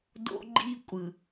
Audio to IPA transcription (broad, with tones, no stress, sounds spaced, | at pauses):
d o̰˦ ɡ͡ǃ i˦ kʷʼ ɯ˨